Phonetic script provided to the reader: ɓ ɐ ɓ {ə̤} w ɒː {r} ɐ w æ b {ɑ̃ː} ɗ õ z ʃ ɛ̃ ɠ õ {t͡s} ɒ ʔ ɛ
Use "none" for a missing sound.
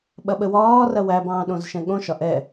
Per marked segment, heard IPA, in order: ə, r, ɑ̃ː, ʃ

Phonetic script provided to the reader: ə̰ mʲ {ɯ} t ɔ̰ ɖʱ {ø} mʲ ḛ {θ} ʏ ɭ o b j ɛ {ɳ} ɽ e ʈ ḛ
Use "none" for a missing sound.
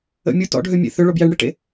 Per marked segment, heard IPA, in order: u, ø, θ, ɳ

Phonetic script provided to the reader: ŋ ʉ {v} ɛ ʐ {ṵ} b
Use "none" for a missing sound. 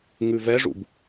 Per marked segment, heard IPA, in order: v, ṵ

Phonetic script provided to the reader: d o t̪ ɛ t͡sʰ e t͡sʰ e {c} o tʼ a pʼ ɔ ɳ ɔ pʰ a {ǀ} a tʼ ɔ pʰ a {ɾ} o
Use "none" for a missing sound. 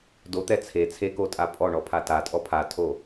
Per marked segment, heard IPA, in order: k, t, tʰ

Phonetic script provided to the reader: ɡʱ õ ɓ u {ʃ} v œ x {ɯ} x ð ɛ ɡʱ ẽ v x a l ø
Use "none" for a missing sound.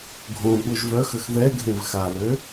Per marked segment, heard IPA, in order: ʒ, ə

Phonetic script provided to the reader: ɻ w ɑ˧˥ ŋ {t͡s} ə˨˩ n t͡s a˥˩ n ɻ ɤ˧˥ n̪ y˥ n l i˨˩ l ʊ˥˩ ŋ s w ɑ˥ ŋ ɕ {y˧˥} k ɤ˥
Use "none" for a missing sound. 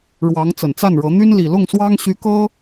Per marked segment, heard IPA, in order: t͡s, y˧˥

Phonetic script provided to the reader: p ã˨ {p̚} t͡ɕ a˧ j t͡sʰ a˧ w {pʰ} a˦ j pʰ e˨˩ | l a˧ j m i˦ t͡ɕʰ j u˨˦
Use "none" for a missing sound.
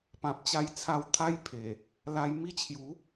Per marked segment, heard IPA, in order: p̚, t̪ʰ

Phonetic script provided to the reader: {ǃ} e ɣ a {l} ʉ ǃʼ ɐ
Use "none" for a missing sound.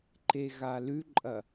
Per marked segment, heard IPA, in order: ǃ, l

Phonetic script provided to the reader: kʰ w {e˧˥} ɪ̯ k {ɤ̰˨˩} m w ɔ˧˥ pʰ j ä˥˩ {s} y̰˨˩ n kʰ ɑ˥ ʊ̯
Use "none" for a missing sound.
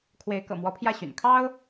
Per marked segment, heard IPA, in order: e˧˥, ɤ̰˨˩, ɕ

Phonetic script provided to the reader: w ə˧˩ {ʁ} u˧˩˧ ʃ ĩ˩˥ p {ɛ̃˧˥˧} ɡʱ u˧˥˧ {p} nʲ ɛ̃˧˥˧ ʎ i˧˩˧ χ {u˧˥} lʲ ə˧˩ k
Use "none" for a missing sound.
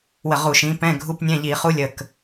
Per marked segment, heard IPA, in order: ʁ, ɛ̃˧˥˧, p, u˧˥

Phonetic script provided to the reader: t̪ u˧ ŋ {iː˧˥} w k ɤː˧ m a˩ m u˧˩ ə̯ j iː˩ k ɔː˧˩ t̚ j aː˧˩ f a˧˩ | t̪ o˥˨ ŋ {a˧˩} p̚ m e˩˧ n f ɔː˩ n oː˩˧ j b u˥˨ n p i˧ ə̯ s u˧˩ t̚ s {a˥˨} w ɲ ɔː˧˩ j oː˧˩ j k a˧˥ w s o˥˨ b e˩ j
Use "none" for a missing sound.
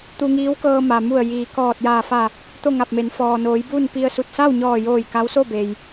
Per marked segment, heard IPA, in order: iː˧˥, a˧˩, a˥˨

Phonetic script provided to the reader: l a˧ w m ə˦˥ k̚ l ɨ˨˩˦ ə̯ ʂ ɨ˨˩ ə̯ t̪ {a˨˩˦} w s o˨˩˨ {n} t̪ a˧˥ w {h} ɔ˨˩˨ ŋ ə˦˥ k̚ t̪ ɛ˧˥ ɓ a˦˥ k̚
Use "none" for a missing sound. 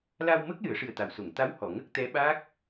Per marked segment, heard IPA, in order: a˨˩˨, ŋ, h

